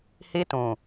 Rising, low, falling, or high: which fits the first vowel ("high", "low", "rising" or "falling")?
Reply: high